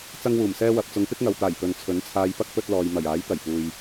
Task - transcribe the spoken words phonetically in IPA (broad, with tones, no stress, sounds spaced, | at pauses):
t͡s ɐ˥ ŋ w uː˨˩ m s ɛː˥ w ɐ˨ p̚ t͡s ʊ˨˧ ŋ p ɪ˥ k̚ ŋ ɐ˨ w t̪ aː˨˩ j p ɵ˨ n t͡sʰ ɵ˨˥ n t͡sʰ aː˧ j p ɐ˥ k̚ p ɵ˧ t̚ l ɔː˨ j m ɐ˨˩ j aː˨˥ j t̪ ɐ˨˩ j p uː˨ j